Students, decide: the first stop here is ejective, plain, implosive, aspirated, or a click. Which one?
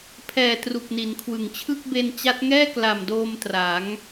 aspirated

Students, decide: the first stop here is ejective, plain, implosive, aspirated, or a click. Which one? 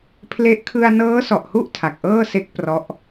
aspirated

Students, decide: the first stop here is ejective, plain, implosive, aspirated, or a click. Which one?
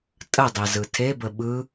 ejective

